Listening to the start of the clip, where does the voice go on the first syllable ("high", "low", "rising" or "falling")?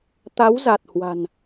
rising